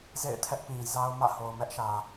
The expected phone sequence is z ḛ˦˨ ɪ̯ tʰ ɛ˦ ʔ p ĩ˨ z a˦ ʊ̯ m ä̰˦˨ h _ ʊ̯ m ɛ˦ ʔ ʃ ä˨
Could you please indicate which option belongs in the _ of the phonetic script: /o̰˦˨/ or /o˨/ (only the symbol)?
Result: o˨